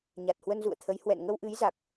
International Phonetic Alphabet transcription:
ɲ a˨˩ t̚ h w ə˧ n z ṵ˧˨ ə̯ t̪ʰ ə˨˦ j h w ɛ̰˧˨ n ŋ ə˧ w ʔ ɨ˨˦ j z a˨˩ k̚

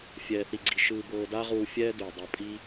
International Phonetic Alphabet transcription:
fʲ ɛː˧ θ i˧ ɡ͡ǀ i˧ ʃ ɯː˧ b ɤː˧ d a˦ ʁ uː˧ fʲ ɛː˦ d uː˨ dˤ ɤ˧ pʼ i˦

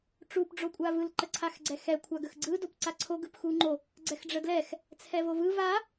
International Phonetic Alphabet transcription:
ʈ͡ʂ u p ɖ͡ʐ o kʷʼ a v ɯ l ǃ ə ǀʰ a x ɡ͡ǀ ɛ x ɛ kʷʰ a ɡ ə x ɡ͡ǀ ɯ d o p ǀ a ǀʰ o ɡ ɯ p x u ŋ͡ǃ o | ɡ͡ǀ ɛ x ɖ͡ʐ ə d l ɛ x | t͡sʰ ɛ v o v ɯ v a

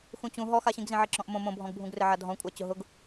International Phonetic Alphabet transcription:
x ũ t͡ɕ ũ ɦ ɔ x a ɕ ĩ ɡ z ĩ ʕ e ǁ ɔ̃ ʔ m õ m õ bʱ ɔ̃ ɡ bʱ ũ ɡ r ɪ ʕ a dʱ ɔ̃ kʷʼ a t͡ɕ ʊ ɦ ʊ ɡ

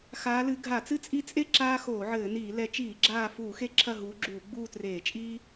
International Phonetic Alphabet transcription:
x aː˨˦ l ɨ˨˦ ɡʱ a˧˩˧ t͡s ɨ˦ t͡sʼ i˦˨ t͡sʼ e˦ ǁ aː˦ x oː˧˩˧ ʕ ɘː˧˩˧ n iː˧˩˧ l ɛ˨˦ t͡ʃ iː˧˩˧ ɡ͡ǁ aː˦˨ f uː˧˩˧ x e˦ ǁʰ ɐ˦˨ ɦ uː˨˦ ɡ͡ǁ uː˧˩˧ ɡ͡b uː˦˨ t r eː˧˩˧ t͡ʃʼ iː˦

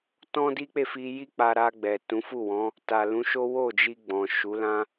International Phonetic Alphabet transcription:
t ɔ̃˦ d i˦ k͡p e˦˨ f i˧ j i˦ k͡p a˧ ɾ a˧ ɡ͡b ɛ˨ t ũ˨˦ f u˦˨ w ɔ̃˨˦ | t a˨ l ũ˨˦ ʃ o˦ w o˦˨ d͡ʒ i˧ ɡ͡b ɔ̃˨ ʃ u˨˦ l ã˦

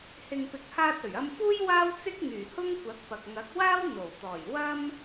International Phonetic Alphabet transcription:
h ɪ˨ ŋ p ɪ˨ k̚ h aː˧ t̚ ɵ˨˩ ɥ ɐ˧ m f uː˥ j w aː˥ w t͡s ɪ˥ k̚ ŋ yː˨˩ h ʊ˥ ŋ kʷ ɐ˨˥ k̚ p ɐ˨ k̚ ŋ ɐ˨˥ k̚ w aː˥ w n̪ o˨˩ w t̪ ɔː˨˩ j w ɐ˥ m

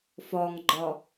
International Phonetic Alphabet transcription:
f ɒ ŋ ɡ͡ǃ ɒ

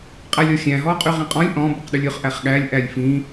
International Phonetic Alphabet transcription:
qʼ æ lʲ ɔ xʲ æ̃ ɦ ɔː qʼ y ʁ ĩ qʼ ɔ̃ lʲ ʔ ɔ̃ b ʉ q ɗ ʉ lʲ ɵ χ ʔ æ χ ɠ æ lʲ ʔ æ lʲ f ĩ

